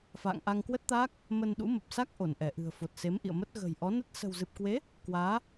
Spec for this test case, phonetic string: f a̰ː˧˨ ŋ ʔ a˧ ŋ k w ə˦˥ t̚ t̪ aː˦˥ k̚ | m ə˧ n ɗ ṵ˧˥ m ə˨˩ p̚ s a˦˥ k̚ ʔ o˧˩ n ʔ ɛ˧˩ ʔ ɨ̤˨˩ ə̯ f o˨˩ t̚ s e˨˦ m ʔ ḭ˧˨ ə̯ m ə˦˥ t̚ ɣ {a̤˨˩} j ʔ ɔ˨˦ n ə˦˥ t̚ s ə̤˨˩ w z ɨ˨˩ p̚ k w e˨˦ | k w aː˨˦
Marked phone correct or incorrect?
incorrect